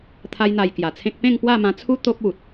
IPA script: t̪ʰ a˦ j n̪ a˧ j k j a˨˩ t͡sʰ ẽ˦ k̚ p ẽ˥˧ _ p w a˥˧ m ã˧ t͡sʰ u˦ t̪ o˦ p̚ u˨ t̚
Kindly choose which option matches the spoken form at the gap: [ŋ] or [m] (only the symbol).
ŋ